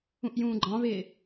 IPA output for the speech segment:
ũ ʔ j ũː ɡ͡ǃ ɑ̃ β ɪː

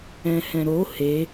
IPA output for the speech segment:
ɛ̃ h ɛ̃ ɾ o h e

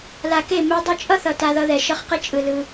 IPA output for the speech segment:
l a˨ k e˦˨ m ɛ˧ dˤ ɯ˧ t͡ʃʼ ʌ˦ θ ʌ˨ t a˧ ð ʌ˧ ð ɛ˨ ʃ ʌ˧ χ q e˦ t͡ʃʼ ɯ˨ l ɯ˧

